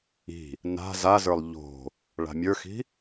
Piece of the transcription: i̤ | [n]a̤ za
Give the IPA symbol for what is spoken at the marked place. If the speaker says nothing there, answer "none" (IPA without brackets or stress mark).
n